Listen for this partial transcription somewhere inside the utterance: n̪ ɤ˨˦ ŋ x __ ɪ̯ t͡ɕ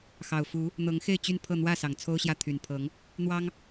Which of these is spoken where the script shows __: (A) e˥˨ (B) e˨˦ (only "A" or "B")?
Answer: A